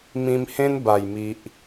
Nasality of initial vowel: nasal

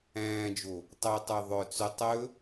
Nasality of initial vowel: nasal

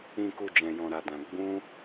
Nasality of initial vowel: nasal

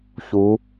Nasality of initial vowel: oral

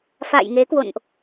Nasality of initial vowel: oral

